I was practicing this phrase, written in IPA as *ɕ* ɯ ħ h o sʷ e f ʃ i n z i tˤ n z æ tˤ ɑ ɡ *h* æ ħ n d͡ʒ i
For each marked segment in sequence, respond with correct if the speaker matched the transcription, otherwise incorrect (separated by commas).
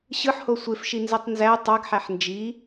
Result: correct, incorrect